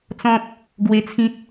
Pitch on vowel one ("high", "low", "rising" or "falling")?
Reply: high